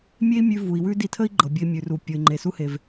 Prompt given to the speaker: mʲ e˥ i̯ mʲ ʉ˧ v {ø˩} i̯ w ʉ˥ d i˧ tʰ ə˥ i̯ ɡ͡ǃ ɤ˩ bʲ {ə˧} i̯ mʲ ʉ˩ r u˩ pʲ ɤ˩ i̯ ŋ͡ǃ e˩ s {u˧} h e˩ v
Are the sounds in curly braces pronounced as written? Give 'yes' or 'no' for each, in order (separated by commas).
no, yes, yes